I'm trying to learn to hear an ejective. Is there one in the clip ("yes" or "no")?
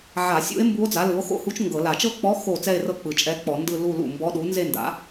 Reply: yes